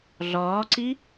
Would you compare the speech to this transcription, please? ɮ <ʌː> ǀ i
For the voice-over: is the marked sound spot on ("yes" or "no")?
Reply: no